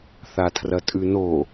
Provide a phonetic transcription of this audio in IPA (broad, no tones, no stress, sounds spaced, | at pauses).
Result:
θ a tʰ r ɐ tʼ ʉ n o